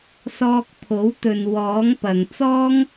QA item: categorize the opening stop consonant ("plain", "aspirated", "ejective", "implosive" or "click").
plain